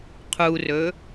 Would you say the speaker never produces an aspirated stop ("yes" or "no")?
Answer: no